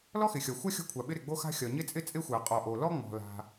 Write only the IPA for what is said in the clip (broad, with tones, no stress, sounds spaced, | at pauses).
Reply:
l ɔ˥ x ɪ˩ xʲ ɒ˩ xʷ a˥ xʲ ɔ̤˥ kʷʰ a˩ ɓ ɪ˥ ɾ ɪ˩ ɡ͡b o˥ x a̤˥ xʲ ɒ˩ ɲ ɪ˥ t͡sʼ ɪ˥ t͡sʼ ɪ˥ xʷ a˩ qʼ ɔ˩ ʔ o˩ l ɔ˥ ŋ͡m ɔ̤˩ l a̤˩